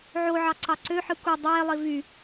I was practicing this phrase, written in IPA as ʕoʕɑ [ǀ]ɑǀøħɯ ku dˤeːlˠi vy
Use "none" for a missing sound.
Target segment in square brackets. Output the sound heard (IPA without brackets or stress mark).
ǀ